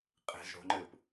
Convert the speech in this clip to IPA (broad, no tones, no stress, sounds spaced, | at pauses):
qʼ e̤ z ɽ o̤ ŋ͡ǃ ɘː p